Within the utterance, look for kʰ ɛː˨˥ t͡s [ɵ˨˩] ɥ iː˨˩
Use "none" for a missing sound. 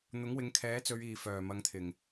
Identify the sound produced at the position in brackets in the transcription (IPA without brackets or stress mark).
ɵ˨˧